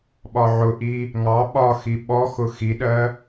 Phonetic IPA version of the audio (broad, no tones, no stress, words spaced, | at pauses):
ɓɒʕʊʔi | ŋɑ ɓɒxi ɓɔxʊ xiɗɜ